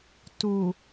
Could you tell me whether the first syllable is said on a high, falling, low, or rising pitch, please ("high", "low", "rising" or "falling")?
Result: low